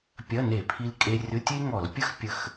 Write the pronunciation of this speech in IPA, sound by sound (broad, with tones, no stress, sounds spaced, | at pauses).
pʲ ɐ˧˥˧ n e˧˩˧ pʰ i˧ l kʼ e˧ rʲ ʊ˧˥˧ tʲ e˥ ŋ ɔ˧˩˧ l pʲ ə˥ x pʲ ə˧ x